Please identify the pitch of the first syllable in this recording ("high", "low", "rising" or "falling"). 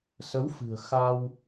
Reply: rising